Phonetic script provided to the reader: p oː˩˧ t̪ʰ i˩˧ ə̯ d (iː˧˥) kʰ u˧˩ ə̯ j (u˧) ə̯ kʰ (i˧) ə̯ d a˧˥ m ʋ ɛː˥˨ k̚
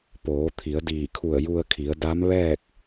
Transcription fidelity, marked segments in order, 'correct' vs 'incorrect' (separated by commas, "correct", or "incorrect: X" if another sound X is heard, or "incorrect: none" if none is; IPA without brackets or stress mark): incorrect: iː˧˩, correct, incorrect: i˩˧